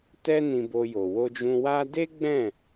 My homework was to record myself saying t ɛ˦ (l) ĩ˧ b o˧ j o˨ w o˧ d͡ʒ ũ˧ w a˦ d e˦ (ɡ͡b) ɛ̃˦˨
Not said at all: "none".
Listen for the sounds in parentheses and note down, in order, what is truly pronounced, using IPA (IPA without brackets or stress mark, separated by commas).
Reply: n, ɡ͡b